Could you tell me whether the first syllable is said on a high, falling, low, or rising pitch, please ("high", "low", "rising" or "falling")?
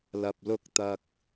low